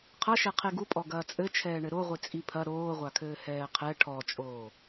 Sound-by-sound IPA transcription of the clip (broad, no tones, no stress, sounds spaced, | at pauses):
qʰ ɐ ʃ ɛ qʰ e ɡ u pʼ ɔ ɡ ɐː t͡sʼ ɘ t͡ʃʰ ɛː ɳ ɘ ɾ o ʁʷ i t͡sʼ i pʰ ɐ ɾ oː ʁʷ a kʰ ɘː h ɛː qʰ ɛ ʈʰ ɔ t͡ʃʼ oː